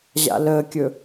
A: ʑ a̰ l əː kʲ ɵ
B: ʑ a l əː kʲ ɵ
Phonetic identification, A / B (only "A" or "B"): A